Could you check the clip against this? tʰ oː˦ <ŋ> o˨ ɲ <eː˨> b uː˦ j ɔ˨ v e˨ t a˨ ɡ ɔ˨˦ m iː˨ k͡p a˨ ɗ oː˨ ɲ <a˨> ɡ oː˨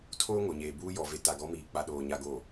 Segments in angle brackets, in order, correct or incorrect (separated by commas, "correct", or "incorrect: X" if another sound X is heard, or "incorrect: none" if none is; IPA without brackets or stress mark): correct, correct, correct